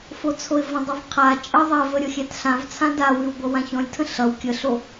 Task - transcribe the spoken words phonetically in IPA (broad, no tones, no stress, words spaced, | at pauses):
fot͡sʰoɪ̯və̃dˤov qʰa t͡ʃʼə ðˤɛvə ɾʲʌxʲætɬãvt͡sʰã dawʉw ɡʷʌwãçɔ̃lʲtʰə̃ ɬʌw kʲəɬo